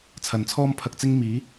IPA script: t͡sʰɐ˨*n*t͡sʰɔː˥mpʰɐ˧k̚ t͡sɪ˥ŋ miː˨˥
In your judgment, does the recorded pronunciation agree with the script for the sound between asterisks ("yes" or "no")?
yes